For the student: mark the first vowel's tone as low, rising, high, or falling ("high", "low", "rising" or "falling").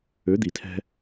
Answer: rising